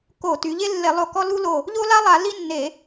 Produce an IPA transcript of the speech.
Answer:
k o˧˩˧ t y˩˧ ʎ e˦ lː e˧˩˧ lˠ o˧˩ k ɔ˦ l u˦ l o˧˩ | ʎ o˦ l a˦ lˠ a˧˩˧ l i˦ nː e˧˩˧

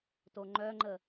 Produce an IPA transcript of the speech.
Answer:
t o ŋ͡ǃ œ ŋ͡ǃ ə

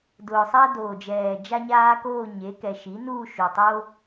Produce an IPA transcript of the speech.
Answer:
d ʊː˨˩ sˤ a˦ d oː˨˩ d͡ʒ ɛː˨˩ d͡ʒ a˦ ɲ aː˦ k oː˥˨ ɲ e˩˥ k ɛ˨˩ ʃ i˩˥ n uː˥˨ ʃ u˨˩ tˤ o˦

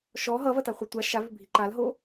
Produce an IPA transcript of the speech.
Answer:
ʃ ɔ ɦ ʌ v ɐ t a χʷ ɛ tʷ a ʃ a v ʏ bʱ i ǃ a l ɦ o

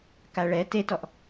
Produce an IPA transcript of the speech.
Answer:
k a ɭ ɛ t e t ɔ ʔ

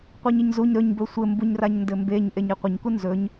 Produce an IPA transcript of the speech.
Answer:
qʷ i ɲ ɘ ɲ z u ɲ ɾ ɵ ɲ b ɵ sʷ ɘ m b u ɲ r a ɲ n d ɘ m b e ɲ ʔ e ɲ e qʷ ɘ ɲ k u n z ɵ ɲ

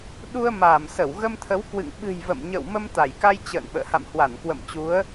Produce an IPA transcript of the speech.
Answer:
ɗ u˧ ə̯ m aː˧˩ m s ə˧˩ w ɣ ə˧ m t̪ʰ ə˨˦ w k w ɨ̰˧˨ ŋ ɓ ɨ̤˨˩ j v ə̰˧˨ m ɲ ə̰˧˨ w m ə˧ m t̪ a˧˩ j k a˧ j t͡ɕ ə̰ː˧˨ n ɓ ə̰ː˧˨ h a̰˧˨ m h w a˧˩ n k w ə̰˧˨ m t͡ɕ u˨˦ ə̯

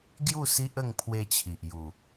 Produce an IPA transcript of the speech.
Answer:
ɡ j u˥˧ s i˦ ʔ ə˥˧ ŋ pʰ w e˧ t͡ɕʰ i˨ ʔ j u˨˩

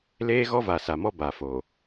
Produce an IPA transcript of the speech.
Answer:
l eː˦ ɣ ɔ˦ v a˨ s a˨ m ɔ˦ b a˨ f o˨

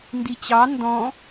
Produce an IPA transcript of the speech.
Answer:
n d i t͡ɕ ɑ n d ɔ̃

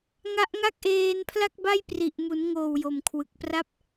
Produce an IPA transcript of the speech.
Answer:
ŋ a˦˥ ʔ ŋ a˥˩ k̚ ʔ eː˧ n pʰ l a˥˩ k̚ b a˥˩ j p r i˨˩ ʔ m u˩˦ n ŋ oː˨˩ w j o˨˩ m kʰ w ɯ˨˩ k̚ p r a˥˩ p̚

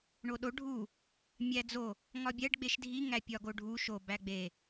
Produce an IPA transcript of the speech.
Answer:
ɳ o ɗ o ɖʱ u | mʲ æ d͡z o | ŋ ɒ bʲ æ ɖ ɡ͡b e ʃ dʱ i ŋ æ pʲ ɒ ɡ o ɖʱ u ʃ o b æ ɡ͡b e

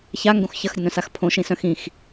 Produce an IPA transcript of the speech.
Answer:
ç a ŋ ɡ õ x ç ɐ x ɾʲ ɐ n œ̃ s a x pʰ õ ʃ ĩ s œ̃ x ĩ x

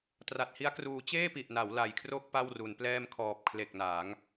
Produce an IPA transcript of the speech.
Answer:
t r a˨˩ t̚ h i˦˥ a̯ k r uː˧ t͡ɕ eː˥˩ p i˨˩ ʔ n a˩˦ w l a˨˩ j kʰ r o˥˩ k̚ p a˥˩ w r u˩˦ n p l ɛː˥˩ m kʰ ɔː˨˩ p̚ kʰ l e˨˩ k̚ n a˩˦ ŋ

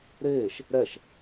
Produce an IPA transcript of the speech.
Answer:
ɾ eː ʃ | ɾ ɛ ʃ

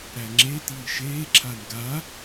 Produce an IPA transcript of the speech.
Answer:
ɾ æ ŋ͡ǁ e t iː ʃ eː ǁʰ a n ɡ a

